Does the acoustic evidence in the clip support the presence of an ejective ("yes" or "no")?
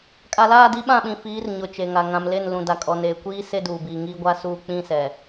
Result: yes